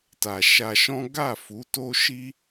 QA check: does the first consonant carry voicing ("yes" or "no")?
no